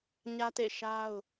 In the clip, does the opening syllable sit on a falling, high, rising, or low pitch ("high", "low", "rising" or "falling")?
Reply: high